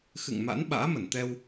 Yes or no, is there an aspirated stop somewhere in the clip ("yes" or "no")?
no